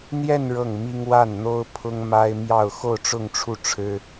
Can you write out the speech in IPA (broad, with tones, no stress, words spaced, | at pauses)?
n̪jɛ˥˧n ɻɤ˥˩ŋmi˥ŋ wa˥˩nn̪o˥ʊ̯pʰʊ˥ŋ ma˥ɪ̯ mjɑ˥˧ʊ̯ xo˥˧ʊ̯ʈ͡ʂʊ˥˧ŋʈ͡ʂʰu˥˩ʈ͡ʂʰɻ̩˥